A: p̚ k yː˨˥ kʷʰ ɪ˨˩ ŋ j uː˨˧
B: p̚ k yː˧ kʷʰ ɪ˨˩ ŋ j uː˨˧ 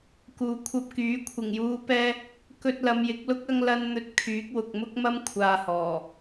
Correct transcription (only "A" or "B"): A